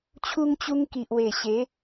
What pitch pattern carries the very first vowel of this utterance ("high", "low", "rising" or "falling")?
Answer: high